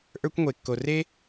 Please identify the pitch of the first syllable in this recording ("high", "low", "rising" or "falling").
high